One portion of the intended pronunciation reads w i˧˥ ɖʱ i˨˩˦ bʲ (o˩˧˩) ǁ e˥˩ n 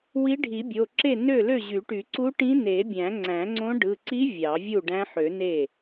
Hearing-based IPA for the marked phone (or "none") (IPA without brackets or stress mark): o˩˧˩